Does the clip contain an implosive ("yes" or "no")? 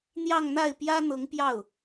no